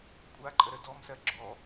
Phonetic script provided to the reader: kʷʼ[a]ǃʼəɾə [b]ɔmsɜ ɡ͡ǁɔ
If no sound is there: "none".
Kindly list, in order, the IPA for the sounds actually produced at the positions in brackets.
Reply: a, d

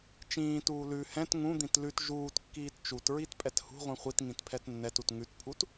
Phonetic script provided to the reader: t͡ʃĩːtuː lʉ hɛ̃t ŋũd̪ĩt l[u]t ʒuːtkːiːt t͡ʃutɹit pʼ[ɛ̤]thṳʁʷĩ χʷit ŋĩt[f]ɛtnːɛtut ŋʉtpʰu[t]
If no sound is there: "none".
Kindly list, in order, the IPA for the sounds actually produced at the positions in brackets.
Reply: ʉ, ɛ, pʰ, t

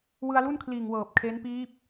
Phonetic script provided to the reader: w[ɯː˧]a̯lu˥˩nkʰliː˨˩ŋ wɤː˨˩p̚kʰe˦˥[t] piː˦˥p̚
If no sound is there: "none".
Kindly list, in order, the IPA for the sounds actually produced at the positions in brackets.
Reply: ɯ˧, n

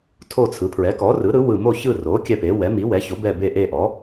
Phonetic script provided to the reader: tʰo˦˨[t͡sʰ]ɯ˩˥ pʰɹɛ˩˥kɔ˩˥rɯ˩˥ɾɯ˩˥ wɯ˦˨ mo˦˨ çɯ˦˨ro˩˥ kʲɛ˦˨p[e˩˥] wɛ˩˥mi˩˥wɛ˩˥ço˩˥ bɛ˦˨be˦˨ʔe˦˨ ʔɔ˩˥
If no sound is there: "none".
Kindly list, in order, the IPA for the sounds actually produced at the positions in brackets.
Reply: t͡sʰ, e˩˥

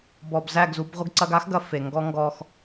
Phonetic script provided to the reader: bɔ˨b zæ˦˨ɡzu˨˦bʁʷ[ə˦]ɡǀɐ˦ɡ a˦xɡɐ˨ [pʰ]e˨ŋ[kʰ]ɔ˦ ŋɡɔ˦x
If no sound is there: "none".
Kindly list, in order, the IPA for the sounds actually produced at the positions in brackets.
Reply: ə˦, f, ɡ

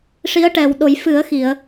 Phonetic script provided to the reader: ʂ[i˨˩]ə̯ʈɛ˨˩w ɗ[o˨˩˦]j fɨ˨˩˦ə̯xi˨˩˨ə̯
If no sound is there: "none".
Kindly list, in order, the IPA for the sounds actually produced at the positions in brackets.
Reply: i˧˥, o˨˩˦

